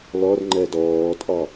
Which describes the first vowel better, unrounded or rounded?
rounded